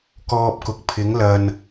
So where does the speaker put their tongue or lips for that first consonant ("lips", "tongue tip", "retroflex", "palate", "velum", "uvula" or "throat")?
velum